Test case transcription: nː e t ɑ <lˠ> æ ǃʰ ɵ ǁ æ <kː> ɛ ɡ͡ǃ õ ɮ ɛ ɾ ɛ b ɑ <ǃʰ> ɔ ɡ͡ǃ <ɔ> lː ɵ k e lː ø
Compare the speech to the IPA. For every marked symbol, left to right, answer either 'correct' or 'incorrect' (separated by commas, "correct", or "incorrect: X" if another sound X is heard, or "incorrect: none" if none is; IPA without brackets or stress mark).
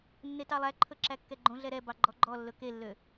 correct, correct, incorrect: ɡ͡ǃ, correct